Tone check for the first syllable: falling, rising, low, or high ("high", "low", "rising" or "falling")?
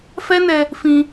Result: high